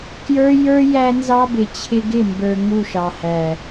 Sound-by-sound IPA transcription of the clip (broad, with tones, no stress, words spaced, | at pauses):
kjə˞˦jə˞˦ jæ˦nzɑ˦bɪ˨ t͡ɕʰɪ˧ɡɪ˦˨mbə˞˨ ŋu˦˨ʃɑ˨hæ˨